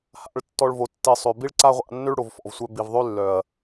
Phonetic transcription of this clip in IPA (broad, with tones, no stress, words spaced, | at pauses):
ha̰˨˦ɭtːɔ˧ɭvo˨ tːi˨sˤø˨ bi˦ɭǀa˦ʁʷa̰˧ nːø˦ɭ ɽo˨vfɔ̰˨vsʷœ˧ bi˨vðˤø˦lːœ˨ɐ̯